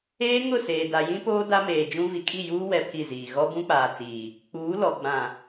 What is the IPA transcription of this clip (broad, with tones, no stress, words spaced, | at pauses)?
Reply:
eː˦ŋʊ˦˨seː˨da˨ jĩ˦poː˦ da˦meː˨d͡ʒũ˦ vi˨kʼi˦˨juː˦ wɛ˦pʰi˦˨ziː˨ ɣɔ˦bũ˦k͡paː˨t͡siː˨ | k͡puː˨˦lɔ˨ ɡ͡bã˨